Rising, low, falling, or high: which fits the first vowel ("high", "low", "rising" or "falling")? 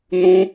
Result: high